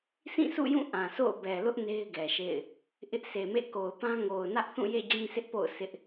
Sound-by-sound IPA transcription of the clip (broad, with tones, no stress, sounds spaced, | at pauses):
sʰ ĩ˦˨ s ṵ˦˨ j ũ˦˨ ʔ ã˨ s o̰˦˨ ʊ̯ b ɛ˨ l ʊ˦ ʔ n e˦ ɪ̯ ɡ ɛ˨ ʃ ḛ˦˨ ɪ̯ | ʔ ɪ˦ ʔ sʰ e˨ m ḛ˦˨ k o˨ ʊ̯ p ã˦ ŋ o˨ ʊ̯ n ä˦ ʔ θ ũ˦˨ j ḛ˦˨ d͡ʑ ĩ˦ s ɪ˦ ʔ p o̰˦˨ ʊ̯ s ɪ˦ ʔ